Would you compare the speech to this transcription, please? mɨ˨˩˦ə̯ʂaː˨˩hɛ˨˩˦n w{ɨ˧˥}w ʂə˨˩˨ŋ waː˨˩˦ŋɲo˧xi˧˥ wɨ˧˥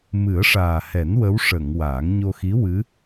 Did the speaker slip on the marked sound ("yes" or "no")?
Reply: yes